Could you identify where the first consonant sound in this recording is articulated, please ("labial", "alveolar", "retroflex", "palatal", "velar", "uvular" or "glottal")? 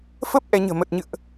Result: labial